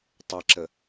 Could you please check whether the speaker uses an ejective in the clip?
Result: no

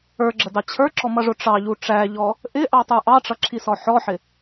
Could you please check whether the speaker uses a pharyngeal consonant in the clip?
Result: yes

